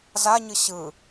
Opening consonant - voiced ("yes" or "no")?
yes